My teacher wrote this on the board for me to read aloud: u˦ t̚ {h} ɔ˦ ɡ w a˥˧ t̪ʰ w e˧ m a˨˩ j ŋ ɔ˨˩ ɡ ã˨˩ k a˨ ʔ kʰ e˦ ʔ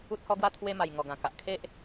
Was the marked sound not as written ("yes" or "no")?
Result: no